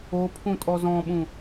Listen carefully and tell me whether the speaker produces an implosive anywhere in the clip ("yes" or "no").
yes